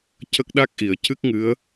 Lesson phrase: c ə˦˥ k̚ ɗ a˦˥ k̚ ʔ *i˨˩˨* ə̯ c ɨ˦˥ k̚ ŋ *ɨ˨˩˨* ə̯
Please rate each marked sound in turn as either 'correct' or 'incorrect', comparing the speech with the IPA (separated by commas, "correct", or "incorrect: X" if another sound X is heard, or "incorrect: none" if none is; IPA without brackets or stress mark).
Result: correct, incorrect: ɨ˧˥